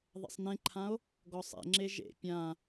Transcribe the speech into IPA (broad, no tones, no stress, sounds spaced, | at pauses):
ðˤ ɛ̰ sˤ n ẽ ǃʰ ã o̯ | ɡ ɔ sˤ ḛ ŋ͡ǁ e ʒ ḛ pʲ ã